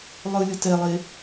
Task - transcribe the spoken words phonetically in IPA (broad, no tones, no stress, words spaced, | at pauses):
lˠɯlʲɯ tɛlˠe